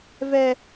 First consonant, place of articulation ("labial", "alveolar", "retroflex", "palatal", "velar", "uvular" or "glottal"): labial